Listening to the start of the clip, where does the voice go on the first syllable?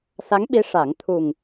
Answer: rising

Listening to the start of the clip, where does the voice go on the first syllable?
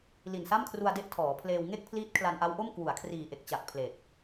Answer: low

